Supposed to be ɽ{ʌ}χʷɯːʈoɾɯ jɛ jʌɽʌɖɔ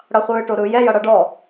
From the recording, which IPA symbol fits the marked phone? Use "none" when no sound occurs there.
ʌ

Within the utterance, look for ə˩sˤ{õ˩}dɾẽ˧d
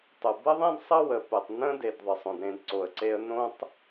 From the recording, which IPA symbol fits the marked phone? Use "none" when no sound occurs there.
õ˩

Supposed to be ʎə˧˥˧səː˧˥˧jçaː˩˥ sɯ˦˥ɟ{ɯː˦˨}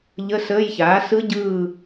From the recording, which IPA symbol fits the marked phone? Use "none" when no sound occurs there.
ɯː˦˨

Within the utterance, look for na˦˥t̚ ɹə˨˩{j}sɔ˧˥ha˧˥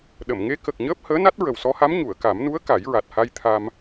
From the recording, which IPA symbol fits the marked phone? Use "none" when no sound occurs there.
w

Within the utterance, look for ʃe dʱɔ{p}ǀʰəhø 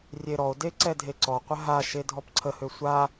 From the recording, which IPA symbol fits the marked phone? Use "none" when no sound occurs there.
p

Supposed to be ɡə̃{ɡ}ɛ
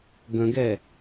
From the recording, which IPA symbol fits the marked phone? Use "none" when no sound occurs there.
ɡ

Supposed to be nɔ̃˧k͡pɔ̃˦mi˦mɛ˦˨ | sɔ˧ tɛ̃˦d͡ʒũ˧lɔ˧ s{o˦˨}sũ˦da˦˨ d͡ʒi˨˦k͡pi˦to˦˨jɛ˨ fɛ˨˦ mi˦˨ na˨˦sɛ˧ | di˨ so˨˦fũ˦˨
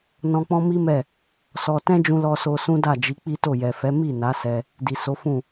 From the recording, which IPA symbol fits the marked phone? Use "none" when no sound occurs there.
o˧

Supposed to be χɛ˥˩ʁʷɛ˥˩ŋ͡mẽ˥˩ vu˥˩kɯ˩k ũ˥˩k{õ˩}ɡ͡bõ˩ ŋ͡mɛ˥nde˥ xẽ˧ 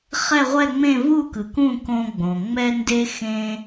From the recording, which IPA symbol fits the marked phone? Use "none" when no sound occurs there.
õ˧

